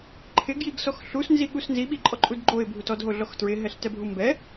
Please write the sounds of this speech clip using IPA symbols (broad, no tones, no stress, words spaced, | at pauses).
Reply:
ǃʰɪɡjiɡsɔx ɬusnziɠus nziɓiǃʼɔǃʼud ɡ͡ǃoɪ̯bʱut ɔdɦoɮɔx tɹɪɦɛɬtɛbʱu mbɛ